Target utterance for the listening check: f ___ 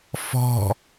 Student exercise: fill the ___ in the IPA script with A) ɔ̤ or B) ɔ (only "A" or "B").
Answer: A